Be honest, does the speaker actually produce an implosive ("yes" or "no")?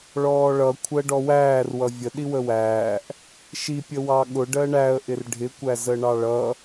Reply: yes